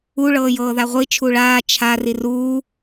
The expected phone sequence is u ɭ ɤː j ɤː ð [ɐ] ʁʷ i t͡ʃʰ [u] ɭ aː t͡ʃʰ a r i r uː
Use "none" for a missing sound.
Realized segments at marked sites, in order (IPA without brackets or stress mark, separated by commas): a, u